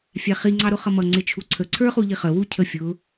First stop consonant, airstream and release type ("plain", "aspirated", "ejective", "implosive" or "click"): click